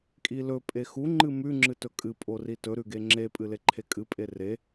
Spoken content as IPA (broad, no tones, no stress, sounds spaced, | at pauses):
kʼ i l ɵ pʼ e x u ŋ͡ǃ ɨ m ʉ ŋ͡ǁ ɨ t ɵ kʼ ɨ pʼ o r i t ɵ ɾ ʉ ɡ e ŋ͡ǁ e pʼ ɨ l e ǃʰ e kʼ ɨ pʼ e r e